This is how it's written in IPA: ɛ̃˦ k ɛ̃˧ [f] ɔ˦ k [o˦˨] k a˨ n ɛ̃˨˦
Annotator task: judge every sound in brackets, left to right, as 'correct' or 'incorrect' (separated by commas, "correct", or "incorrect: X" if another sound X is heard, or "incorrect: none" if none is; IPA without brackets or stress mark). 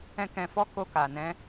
correct, incorrect: o˧